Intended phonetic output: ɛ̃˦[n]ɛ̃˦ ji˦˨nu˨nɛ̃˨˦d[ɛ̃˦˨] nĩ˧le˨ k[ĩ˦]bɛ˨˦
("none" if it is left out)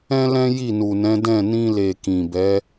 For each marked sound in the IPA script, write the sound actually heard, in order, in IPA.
l, ɛ̃˦˨, ĩ˨

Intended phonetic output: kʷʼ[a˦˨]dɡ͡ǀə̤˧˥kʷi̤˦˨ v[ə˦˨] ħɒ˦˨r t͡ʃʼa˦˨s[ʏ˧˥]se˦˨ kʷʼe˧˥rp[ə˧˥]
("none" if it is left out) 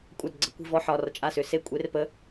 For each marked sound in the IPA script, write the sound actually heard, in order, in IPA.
a˦˨, ɔ˦˨, ʏ˧˥, ə˧˥

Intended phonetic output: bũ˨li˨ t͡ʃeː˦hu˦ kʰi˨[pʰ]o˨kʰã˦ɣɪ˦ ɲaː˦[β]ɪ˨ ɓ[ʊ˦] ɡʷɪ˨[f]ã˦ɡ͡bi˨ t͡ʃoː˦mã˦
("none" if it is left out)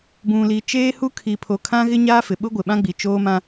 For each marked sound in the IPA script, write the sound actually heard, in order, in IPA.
pʰ, f, ʊ˦, ɓ

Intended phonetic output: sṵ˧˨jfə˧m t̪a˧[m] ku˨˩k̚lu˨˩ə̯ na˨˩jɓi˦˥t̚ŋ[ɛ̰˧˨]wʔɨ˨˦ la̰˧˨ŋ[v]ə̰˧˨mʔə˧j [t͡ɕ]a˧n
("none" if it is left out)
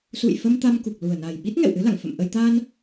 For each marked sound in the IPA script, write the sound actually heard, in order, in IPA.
m, ɛ̰˧˨, f, t̪

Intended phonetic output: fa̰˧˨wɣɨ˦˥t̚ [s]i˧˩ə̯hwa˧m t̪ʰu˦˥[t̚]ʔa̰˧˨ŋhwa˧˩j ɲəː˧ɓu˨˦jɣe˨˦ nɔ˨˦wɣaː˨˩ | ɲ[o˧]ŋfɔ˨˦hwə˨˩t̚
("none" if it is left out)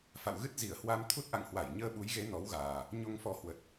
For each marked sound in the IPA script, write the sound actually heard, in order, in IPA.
z, t̚, o˧

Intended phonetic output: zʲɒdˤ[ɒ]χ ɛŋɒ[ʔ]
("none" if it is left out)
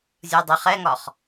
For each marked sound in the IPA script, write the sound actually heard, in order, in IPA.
ʌ, χ

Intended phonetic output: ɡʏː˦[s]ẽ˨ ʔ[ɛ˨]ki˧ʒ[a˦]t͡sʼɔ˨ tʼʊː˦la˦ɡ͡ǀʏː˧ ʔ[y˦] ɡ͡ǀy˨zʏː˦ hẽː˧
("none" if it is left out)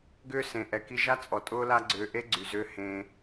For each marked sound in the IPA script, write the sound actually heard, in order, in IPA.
s, ɛ˨, a˦, e˦

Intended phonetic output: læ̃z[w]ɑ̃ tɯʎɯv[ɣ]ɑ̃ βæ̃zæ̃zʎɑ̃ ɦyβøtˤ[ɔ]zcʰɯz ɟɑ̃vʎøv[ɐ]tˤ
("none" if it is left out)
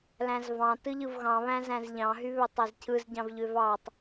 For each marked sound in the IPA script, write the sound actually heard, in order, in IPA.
v, ɣ, ɑ, ɑ

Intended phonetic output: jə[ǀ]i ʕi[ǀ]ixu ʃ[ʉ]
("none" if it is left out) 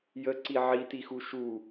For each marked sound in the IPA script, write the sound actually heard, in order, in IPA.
ǀ, t, u

